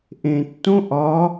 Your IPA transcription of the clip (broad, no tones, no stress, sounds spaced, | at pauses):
ʔ ẽ tː õ ʔ ɒ